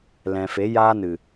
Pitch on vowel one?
low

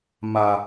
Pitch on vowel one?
low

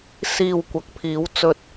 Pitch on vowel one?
low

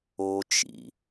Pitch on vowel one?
low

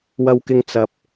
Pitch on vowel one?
high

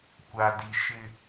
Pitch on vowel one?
low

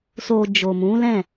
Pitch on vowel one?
low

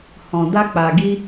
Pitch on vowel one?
low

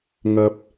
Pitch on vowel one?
low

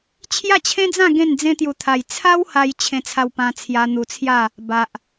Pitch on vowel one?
falling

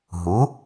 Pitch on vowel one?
rising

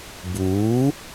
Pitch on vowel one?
rising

